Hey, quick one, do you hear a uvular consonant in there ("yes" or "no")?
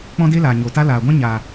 no